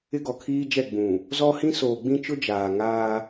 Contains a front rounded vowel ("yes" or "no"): no